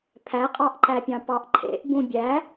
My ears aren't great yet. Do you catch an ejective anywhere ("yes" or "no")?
yes